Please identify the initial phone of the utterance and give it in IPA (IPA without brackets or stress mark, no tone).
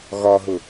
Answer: ɣ